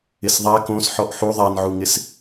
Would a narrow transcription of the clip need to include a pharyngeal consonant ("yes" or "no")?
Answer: yes